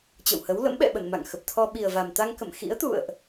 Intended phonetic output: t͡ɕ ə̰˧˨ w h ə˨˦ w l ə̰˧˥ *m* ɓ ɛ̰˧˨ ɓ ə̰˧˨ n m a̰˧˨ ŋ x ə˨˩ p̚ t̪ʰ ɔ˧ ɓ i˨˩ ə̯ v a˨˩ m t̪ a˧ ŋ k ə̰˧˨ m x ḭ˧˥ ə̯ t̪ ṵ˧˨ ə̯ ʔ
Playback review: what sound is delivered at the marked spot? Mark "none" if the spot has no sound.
m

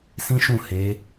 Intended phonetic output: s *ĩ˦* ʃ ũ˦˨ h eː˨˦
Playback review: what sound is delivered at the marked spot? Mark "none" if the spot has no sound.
ĩ˦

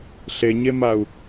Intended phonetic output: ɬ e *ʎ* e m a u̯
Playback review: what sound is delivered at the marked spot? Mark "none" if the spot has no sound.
ɲ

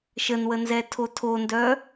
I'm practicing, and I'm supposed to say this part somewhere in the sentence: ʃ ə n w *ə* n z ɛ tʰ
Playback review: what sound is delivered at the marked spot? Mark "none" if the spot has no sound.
ə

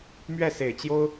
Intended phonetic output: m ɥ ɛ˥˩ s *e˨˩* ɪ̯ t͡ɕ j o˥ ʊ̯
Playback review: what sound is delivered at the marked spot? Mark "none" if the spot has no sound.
e˨˩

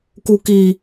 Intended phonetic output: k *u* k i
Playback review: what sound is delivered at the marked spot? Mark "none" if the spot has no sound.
u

